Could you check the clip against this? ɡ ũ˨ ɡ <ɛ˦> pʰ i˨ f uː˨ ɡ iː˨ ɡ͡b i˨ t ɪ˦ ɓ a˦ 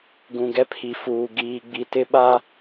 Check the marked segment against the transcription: correct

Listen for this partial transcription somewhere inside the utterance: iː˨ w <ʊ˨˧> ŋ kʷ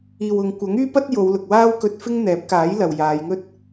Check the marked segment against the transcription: correct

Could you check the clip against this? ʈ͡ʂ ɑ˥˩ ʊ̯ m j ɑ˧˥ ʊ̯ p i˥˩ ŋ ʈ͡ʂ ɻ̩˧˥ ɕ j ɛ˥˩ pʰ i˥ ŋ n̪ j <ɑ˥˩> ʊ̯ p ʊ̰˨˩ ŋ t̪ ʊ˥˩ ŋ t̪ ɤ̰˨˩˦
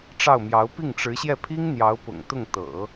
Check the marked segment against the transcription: incorrect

